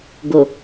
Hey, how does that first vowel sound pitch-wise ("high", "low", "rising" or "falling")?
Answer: low